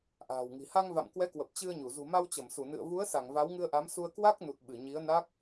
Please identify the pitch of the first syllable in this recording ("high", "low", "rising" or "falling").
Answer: low